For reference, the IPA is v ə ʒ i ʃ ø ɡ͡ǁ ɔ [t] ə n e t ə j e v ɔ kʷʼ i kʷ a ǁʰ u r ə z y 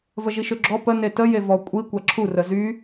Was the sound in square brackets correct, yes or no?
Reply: no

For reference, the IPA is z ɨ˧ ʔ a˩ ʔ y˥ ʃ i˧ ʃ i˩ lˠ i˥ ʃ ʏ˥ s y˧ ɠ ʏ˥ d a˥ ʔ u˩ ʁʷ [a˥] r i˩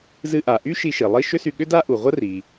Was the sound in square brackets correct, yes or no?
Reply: no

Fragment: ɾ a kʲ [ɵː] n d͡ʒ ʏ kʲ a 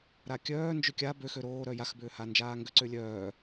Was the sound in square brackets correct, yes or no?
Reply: no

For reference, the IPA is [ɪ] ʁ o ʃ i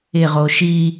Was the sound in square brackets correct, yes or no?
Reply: yes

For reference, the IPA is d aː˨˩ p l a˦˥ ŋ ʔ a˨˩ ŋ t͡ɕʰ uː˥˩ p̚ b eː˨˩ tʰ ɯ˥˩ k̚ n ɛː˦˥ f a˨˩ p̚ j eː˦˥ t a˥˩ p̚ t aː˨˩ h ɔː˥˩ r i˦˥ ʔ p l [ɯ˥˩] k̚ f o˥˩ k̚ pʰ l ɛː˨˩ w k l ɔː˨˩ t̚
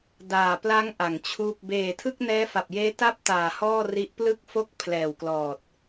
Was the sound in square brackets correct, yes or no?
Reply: yes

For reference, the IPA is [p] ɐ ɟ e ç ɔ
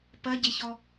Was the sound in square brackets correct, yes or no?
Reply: yes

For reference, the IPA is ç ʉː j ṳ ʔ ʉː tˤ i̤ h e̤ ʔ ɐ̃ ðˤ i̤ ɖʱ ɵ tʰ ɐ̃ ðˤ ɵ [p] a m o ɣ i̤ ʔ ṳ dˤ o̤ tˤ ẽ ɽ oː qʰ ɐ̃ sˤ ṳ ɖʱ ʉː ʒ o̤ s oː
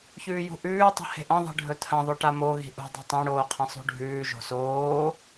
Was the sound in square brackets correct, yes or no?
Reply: no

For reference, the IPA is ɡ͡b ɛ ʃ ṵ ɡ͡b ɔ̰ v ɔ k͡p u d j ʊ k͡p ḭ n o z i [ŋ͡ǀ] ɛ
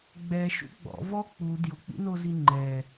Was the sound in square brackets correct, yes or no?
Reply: no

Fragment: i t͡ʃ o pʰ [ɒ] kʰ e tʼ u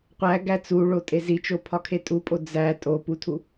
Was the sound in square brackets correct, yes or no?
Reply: yes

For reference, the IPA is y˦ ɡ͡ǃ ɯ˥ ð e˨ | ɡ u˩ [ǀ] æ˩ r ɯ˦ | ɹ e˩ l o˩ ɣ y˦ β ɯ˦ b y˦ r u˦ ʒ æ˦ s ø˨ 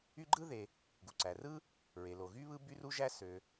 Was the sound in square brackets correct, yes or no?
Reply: yes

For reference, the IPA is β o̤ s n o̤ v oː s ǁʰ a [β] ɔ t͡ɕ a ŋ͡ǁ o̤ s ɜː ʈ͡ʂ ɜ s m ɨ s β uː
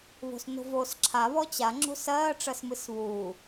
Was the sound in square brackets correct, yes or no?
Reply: yes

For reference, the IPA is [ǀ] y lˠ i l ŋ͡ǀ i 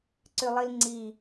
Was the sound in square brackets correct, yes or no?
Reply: yes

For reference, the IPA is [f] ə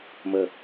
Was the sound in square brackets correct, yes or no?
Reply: no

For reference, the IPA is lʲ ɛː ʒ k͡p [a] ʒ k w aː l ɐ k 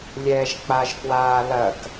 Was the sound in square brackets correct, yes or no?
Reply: yes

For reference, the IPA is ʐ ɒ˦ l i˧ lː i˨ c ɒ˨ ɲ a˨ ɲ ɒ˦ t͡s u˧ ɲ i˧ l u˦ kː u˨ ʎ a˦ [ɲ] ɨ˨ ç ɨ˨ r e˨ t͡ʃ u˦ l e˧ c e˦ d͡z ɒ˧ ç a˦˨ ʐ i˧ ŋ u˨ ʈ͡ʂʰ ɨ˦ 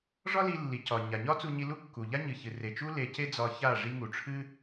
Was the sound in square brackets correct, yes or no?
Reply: yes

